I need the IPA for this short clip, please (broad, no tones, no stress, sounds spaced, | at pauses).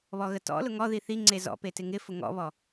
β ɔ ɣ ə t ɔ̰ l ʊ ŋ ɔ ð i θ i ŋ͡ǀ e z ɔ̰ p e t ɪ ŋ ɪ f ʊ ŋ ɔ̰ β ɔ